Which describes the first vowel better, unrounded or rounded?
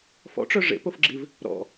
rounded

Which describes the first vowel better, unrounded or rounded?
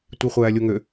unrounded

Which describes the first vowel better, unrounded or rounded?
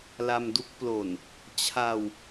unrounded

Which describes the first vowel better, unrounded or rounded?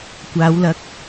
unrounded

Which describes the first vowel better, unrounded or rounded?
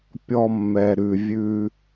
rounded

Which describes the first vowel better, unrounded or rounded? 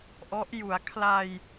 rounded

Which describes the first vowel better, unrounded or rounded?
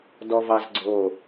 rounded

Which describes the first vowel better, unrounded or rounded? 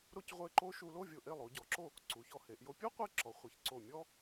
rounded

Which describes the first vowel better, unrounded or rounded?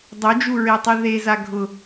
rounded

